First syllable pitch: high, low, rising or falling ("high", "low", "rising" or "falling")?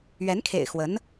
rising